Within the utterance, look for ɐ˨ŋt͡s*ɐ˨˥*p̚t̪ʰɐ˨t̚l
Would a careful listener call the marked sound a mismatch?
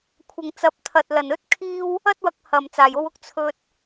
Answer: no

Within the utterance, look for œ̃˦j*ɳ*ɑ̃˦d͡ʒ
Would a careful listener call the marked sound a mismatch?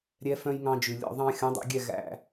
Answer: yes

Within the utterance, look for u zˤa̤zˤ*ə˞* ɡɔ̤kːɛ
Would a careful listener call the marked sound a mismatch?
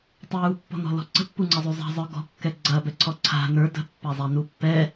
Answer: no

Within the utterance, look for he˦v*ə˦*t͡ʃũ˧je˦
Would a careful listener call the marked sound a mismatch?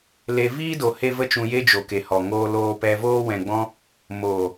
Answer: no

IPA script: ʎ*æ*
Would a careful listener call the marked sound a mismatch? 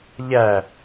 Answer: no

